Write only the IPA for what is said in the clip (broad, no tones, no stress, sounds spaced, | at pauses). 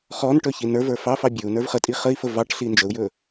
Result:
χ ɔ n ʈ ɵ ç i n ə˞ v ə˞ f ɑ f ɑ bʲ ɵ u̯ n ə˞ v χ ə tʼ i χ ə i̯ f ə v ɑ ʈ ɬ i n d͡ʒ ə u̯ j ɵ